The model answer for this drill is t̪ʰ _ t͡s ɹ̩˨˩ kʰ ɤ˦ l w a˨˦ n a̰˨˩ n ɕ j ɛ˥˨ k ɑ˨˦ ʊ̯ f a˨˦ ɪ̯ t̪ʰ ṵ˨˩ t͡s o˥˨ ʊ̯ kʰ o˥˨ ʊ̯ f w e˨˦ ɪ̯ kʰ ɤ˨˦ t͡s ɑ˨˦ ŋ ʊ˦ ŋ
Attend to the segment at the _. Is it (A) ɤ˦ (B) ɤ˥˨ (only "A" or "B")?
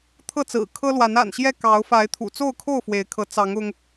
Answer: B